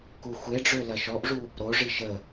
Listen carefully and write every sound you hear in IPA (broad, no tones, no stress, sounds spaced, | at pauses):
k u xʷ e ɖ͡ʐ ø l ɐ ʃ ɔ ʔ ʐ u | ɾ o ʐ i ʃ ə